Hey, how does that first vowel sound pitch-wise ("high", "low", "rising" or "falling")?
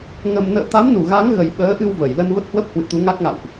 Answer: low